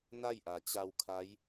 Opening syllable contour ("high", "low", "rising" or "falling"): falling